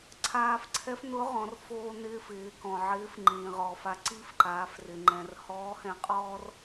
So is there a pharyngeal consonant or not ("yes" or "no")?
yes